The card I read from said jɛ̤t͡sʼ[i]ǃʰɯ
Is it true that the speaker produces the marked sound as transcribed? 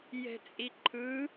yes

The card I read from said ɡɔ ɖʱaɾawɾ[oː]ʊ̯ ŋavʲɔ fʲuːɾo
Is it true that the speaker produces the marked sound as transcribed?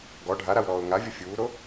no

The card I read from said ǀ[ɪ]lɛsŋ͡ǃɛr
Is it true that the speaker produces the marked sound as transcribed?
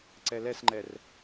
no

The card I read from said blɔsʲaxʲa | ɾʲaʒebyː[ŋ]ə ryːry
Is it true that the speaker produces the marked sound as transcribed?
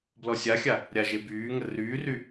yes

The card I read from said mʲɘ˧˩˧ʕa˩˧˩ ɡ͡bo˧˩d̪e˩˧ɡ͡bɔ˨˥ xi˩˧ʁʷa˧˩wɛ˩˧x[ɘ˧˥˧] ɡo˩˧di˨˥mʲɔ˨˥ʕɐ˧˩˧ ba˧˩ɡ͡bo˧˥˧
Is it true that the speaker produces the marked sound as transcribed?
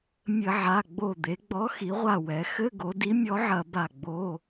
yes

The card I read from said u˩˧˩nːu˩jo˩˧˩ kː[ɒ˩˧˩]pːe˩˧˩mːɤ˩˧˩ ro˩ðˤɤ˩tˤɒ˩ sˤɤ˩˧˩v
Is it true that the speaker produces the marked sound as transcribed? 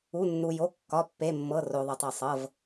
yes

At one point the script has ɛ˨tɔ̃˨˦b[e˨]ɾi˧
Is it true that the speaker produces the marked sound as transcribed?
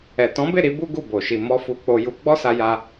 no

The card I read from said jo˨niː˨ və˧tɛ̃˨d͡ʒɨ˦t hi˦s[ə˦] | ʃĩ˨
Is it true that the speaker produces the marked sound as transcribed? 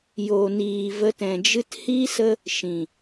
yes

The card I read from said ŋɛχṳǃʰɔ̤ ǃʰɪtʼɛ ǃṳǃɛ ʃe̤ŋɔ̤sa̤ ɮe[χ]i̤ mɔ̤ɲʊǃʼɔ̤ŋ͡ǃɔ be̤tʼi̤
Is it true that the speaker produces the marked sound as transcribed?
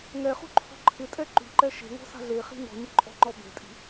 yes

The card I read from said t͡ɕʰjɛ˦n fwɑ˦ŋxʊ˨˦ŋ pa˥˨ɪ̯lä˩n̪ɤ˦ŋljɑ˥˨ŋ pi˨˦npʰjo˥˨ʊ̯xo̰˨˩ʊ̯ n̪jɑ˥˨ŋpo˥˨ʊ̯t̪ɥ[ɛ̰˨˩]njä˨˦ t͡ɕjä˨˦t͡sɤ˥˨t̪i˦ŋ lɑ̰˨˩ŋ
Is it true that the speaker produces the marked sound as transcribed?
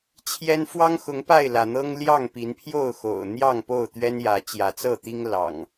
no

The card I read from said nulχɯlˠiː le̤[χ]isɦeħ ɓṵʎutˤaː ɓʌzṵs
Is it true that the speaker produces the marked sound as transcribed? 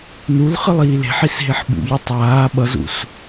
no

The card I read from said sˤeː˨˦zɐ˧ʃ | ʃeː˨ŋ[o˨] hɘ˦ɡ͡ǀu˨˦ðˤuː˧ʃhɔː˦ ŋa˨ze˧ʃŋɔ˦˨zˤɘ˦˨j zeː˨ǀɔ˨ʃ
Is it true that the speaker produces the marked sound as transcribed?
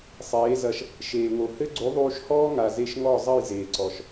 yes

